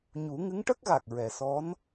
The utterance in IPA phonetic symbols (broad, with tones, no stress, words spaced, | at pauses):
ɲu˨˩˦ŋɨ˧˥ŋʈə˦˥k̚ɣa˨˩k̚ ɹɛ˨˩sɔ˧˥n